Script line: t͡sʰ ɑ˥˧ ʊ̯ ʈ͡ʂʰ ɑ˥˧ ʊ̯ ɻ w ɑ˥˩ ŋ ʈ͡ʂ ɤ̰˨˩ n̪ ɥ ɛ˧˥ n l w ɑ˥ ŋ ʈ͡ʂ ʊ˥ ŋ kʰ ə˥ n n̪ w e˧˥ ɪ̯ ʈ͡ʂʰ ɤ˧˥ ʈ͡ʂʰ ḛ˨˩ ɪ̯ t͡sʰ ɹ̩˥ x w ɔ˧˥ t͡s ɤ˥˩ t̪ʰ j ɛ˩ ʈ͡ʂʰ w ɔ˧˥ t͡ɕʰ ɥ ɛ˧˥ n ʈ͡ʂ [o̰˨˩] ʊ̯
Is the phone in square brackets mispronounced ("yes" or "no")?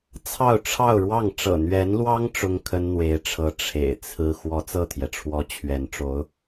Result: yes